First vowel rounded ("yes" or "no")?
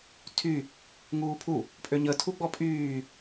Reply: yes